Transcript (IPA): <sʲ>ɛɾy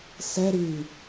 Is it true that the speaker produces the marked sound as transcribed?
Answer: no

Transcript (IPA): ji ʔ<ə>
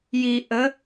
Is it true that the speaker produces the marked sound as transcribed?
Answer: yes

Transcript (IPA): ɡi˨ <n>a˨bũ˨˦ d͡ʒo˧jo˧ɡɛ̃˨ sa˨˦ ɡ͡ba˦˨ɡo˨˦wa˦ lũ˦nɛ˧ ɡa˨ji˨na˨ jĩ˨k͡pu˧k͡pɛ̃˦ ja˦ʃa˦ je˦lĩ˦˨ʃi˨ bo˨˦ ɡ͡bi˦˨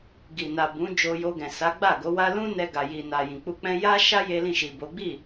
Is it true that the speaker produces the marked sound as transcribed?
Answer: yes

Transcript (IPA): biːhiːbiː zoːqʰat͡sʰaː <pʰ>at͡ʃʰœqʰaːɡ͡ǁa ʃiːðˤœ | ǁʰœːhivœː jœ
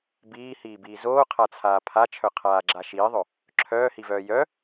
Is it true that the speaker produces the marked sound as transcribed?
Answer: yes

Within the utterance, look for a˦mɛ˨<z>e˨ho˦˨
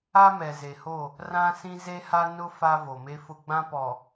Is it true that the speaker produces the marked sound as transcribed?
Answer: yes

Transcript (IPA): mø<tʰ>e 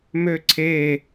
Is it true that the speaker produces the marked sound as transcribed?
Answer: no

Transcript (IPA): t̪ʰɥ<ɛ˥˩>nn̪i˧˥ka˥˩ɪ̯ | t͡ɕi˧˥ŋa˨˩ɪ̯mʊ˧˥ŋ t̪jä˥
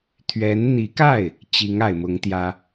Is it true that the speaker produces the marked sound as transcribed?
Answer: no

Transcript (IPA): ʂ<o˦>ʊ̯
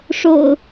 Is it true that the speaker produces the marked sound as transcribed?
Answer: no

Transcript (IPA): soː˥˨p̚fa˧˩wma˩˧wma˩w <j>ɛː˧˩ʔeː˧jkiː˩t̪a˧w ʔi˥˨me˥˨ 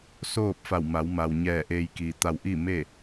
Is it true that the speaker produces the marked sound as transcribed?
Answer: no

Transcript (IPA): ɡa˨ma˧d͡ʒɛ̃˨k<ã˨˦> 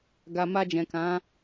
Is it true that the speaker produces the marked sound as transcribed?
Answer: yes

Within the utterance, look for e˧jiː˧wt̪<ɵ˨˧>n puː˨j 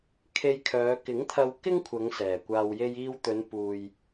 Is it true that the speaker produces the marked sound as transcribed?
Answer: yes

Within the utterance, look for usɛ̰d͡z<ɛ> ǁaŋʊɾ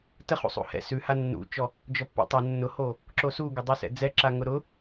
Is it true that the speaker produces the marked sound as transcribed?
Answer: yes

